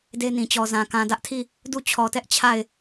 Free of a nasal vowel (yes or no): no